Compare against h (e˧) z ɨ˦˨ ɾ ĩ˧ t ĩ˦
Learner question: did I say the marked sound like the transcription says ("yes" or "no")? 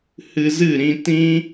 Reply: no